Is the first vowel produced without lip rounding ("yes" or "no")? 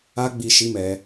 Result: yes